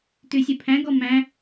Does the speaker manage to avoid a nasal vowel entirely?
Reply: no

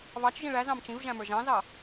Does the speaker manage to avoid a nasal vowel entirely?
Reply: no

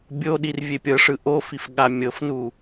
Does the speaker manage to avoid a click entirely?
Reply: yes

